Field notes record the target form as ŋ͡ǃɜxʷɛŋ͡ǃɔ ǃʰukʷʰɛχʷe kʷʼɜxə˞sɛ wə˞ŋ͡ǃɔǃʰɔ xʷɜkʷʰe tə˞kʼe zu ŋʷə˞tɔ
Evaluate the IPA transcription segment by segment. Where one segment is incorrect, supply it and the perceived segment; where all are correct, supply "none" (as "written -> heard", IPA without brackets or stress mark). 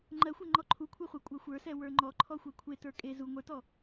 x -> xʷ